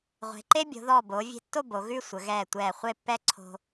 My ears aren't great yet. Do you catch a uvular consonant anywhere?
yes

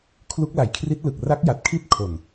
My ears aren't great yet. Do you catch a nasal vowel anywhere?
no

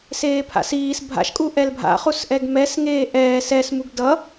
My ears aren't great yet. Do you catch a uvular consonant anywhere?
yes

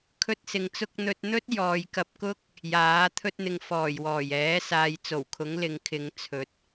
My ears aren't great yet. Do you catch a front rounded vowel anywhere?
no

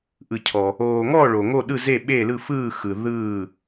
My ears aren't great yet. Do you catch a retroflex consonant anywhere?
yes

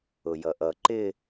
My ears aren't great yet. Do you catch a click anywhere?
yes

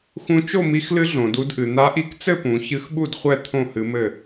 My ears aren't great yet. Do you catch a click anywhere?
no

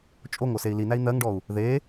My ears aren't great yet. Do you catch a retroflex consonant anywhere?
yes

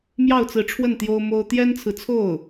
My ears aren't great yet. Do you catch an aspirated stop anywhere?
yes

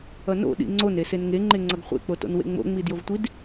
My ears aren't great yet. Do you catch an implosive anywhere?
yes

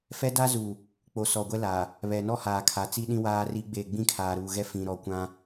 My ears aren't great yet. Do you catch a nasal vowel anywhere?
yes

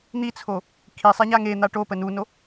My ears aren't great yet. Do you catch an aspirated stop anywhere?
yes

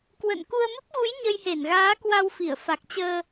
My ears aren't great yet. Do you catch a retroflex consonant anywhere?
no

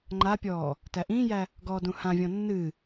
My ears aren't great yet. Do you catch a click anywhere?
yes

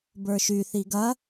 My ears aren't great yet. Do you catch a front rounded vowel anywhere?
yes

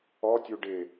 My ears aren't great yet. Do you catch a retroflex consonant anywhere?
yes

